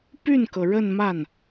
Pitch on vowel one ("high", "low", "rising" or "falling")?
falling